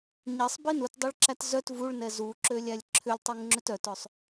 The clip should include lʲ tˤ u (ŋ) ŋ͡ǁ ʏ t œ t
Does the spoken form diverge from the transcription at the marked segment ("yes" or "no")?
no